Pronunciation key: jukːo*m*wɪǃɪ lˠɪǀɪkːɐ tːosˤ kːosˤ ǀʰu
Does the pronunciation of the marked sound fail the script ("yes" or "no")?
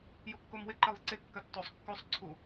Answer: no